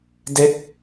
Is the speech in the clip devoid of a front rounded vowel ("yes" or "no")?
yes